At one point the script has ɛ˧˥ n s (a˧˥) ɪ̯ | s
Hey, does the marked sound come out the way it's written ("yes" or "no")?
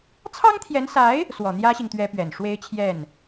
yes